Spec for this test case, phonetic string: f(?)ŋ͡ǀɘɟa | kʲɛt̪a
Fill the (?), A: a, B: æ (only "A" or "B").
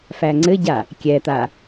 B